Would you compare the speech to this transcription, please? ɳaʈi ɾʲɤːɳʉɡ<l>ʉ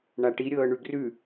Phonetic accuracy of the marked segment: incorrect: r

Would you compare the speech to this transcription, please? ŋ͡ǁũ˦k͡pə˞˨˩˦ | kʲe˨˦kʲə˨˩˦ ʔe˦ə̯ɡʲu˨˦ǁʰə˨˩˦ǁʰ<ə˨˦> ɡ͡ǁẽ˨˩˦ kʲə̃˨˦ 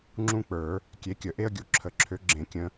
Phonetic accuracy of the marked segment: incorrect: ø˨˦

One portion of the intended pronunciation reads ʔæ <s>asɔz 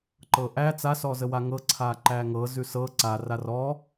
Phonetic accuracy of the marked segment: incorrect: t͡s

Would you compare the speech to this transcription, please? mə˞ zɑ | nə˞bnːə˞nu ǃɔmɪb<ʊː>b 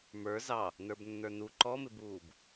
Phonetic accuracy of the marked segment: incorrect: uː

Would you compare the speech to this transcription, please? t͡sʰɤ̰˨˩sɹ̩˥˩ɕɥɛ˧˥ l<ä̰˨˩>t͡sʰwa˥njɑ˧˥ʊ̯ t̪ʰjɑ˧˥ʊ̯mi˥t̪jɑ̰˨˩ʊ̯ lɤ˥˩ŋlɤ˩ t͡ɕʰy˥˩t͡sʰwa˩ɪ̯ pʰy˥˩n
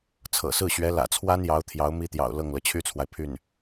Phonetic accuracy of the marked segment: correct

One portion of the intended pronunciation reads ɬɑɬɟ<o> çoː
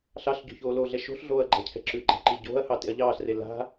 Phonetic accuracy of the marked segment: incorrect: o̤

